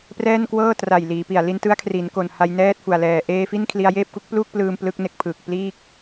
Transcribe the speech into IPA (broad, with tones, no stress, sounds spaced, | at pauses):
p r ɛː˥˩ n k w ɤː˥˩ t r a˨˩ j l iː˩˦ p i˨˩ a̯ l i˧ n t ɯ˦˥ a̯ kʰ r i˩˦ n k o˨˩ n h a˧ j n ɛː˥˩ t̚ f u˨˩ a̯ l ɛː˨˩ ʔ eː˧ f i˥˩ n kʰ l i˧ a̯ j eː˥˩ p̚ k u˥˩ k̚ p l uː˥˩ k̚ p l ɯː˧ m p l ɯ˦˥ k̚ n e˦˥ k̚ pʰ ɯː˨˩ k̚ p l iː˥˩ k̚